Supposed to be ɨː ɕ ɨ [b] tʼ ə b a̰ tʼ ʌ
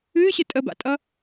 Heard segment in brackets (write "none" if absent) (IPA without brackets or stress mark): none